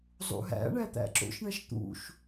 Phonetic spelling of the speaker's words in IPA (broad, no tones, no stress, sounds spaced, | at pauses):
zˤ ṵ ɦ æ̰ ɳ æ t̪ æ̰ ǁ o̰ ʃ ɳ æ ʃ t̪ ṵ ʃ